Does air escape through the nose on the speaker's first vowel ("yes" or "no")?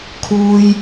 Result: no